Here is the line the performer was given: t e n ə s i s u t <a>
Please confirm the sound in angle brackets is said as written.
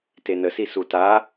yes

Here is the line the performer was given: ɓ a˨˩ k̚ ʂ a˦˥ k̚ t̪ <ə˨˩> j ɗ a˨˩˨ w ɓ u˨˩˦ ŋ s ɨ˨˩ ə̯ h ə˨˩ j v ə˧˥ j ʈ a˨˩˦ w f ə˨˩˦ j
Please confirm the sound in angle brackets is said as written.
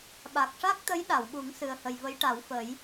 no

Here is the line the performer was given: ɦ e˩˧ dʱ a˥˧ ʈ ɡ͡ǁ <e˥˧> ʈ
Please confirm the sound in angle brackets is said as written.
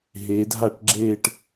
no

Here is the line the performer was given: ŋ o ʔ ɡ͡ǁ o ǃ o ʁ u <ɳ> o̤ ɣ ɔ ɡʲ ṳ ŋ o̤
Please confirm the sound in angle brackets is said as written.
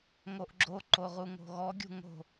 no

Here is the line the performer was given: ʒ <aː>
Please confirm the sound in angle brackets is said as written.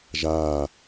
yes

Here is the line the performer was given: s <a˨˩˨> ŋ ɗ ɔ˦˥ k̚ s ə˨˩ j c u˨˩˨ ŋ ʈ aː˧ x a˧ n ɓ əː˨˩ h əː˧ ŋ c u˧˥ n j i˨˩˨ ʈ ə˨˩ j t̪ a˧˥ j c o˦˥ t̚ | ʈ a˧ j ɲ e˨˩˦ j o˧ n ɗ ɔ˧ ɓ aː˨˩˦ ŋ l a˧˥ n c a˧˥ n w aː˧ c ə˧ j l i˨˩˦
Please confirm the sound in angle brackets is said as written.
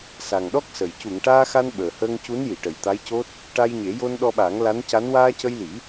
no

